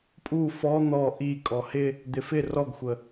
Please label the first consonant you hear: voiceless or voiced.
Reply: voiceless